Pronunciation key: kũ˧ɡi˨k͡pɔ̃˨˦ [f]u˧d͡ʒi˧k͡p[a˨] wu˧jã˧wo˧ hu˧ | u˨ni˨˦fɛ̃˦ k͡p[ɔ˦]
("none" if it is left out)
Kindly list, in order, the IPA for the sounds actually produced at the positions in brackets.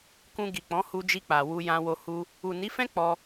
h, a˨, ɔ˧

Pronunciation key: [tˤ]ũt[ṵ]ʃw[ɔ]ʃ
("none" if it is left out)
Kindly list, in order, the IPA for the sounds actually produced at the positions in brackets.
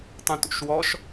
tˤ, ṵ, ɔ

